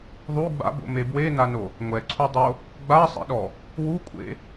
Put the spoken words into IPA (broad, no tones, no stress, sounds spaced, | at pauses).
ðˤ u ɡ͡b a̰ b o̰ m e b w e n a n o | ŋʷ ɛ ǀʰ u dˤ o | ɡ͡b a sˤ ḛ ɗ ɔ | w u kʷʼ ḛ